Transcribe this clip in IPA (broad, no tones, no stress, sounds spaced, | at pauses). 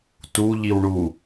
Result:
t u ʎ i w ɳ u